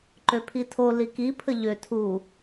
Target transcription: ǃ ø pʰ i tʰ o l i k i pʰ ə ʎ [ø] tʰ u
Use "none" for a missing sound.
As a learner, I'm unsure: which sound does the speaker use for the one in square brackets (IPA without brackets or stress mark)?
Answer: ø